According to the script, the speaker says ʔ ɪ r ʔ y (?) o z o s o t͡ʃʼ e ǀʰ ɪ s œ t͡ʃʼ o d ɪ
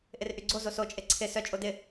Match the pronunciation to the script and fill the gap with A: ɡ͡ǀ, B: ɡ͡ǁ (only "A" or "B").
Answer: A